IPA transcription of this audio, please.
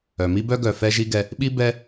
œ˩ m i˥ b œ˥ ɡ œ˩ f ɛ˦ ʒ i˦ ɡ ɛ˨ | ɓ i˥ b ɛ˦

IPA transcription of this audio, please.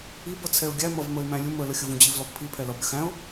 i b ʌ t͡sʰ ɛ ʊ̯ ɡʲ æ m ʌ v m ə ɪ̯ m æ̃ lʲ ʊ m ə l ə xʲ ə v ũ d͡ʑ i v l ɔ b pʰ i pʰ ɛ l ʌ b ɾʲ ə x æ̃ ʊ̯

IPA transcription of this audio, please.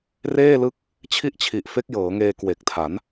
r eː˥˩ l ɯ˦˥ k̚ | t͡ɕʰ i˥˩ ʔ t͡ɕʰ i˨˩ ʔ f e˦˥ k̚ j ɤː˩˦ ŋ eː˧ k w e˨˩ k̚ tʰ a˩˦ n

